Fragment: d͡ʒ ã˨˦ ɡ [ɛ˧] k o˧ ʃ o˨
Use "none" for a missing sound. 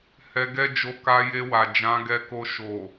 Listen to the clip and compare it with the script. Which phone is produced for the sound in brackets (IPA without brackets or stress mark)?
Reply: ɛ˧